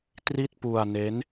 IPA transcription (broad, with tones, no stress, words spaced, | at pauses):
tri˥˩t̚ pu˧a̯ne˦˥n